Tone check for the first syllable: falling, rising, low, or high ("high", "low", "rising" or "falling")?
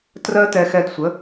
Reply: high